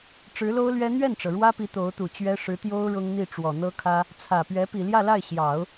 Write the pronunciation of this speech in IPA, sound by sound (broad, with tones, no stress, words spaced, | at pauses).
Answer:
ʈ͡ʂɻ̩˧˥lo˥ʊ̯lɥɛ˥ n̪ɥɛ˥˩nʈ͡ʂɤ˩ɻwä˥pi˧˥ t̪o˧˥ʊ̯t̪u˨˩t͡ɕɥɛ˥ ʂɻ̩˧˥t̪jo˥ʊ̯ ɻʊ˥ŋn̪i˥˩ʈ͡ʂwɔ˨˩ n̪ɤ˥kʰä˥ | t͡sʰä˨˩ pɥɛ˧˥pi˨˩ljä˥˧la˥˩ɪ̯ ɕjɑ˨˩˦ʊ̯